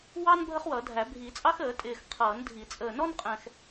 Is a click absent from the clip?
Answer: yes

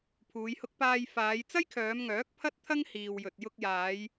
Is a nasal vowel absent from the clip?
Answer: yes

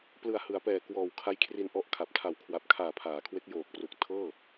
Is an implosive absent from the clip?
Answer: yes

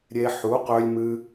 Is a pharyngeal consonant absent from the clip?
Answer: no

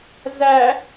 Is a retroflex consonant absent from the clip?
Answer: yes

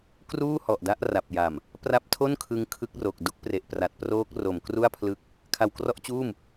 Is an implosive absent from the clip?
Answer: yes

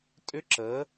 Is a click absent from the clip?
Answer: no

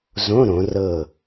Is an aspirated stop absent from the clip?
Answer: yes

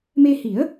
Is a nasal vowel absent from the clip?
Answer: yes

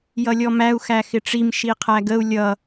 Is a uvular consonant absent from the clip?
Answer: no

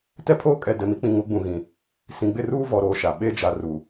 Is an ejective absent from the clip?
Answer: no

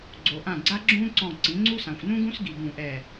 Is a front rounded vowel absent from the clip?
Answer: yes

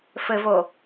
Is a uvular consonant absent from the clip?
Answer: yes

